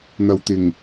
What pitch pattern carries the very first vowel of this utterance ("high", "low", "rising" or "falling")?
low